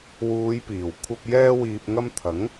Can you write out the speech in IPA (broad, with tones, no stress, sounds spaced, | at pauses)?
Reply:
w uː˨˧ j p iː˨˩ w kʷʰ ɐ˧ p̚ j ɛː˥ w iː˧ p̚ ŋ ɐ˥ m t̪ʰ ɐ˨˥ ŋ